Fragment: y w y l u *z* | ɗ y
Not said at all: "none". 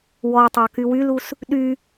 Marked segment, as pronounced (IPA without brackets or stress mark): s